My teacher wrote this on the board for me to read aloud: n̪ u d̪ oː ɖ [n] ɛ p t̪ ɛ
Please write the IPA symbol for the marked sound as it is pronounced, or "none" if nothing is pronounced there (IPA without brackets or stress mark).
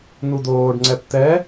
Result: ŋ͡ǀ